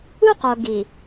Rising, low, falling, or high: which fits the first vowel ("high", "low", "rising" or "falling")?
high